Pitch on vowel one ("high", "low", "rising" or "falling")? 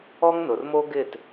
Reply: high